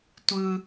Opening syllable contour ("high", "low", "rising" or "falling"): high